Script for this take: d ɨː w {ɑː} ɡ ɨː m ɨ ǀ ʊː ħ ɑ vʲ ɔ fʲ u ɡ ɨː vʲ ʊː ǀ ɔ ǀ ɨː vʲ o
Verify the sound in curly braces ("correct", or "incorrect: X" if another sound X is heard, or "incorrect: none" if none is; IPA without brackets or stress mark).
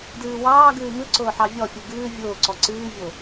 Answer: correct